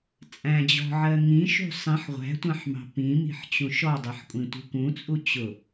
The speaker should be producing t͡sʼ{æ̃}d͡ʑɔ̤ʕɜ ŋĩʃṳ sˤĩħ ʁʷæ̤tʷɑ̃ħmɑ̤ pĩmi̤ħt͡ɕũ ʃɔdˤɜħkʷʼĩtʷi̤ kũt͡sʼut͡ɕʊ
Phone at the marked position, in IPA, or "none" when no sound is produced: æ̃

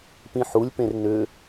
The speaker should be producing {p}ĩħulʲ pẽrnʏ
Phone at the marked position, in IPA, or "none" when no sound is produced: p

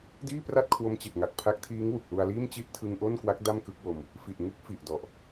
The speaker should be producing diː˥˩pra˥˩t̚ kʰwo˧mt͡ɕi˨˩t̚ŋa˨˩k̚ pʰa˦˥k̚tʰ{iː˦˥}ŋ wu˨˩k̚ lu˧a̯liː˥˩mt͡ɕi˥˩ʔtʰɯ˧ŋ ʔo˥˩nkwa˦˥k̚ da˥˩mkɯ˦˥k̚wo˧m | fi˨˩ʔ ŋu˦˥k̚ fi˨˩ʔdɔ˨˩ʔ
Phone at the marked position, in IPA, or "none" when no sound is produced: iː˦˥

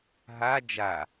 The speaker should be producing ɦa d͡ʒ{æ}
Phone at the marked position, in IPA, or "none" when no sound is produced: a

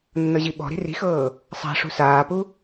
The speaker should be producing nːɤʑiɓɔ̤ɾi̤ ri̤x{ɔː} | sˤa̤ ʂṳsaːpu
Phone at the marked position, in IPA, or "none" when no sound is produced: ɤː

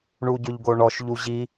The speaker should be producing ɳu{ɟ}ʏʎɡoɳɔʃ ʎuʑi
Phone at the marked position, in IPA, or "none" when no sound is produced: ɟ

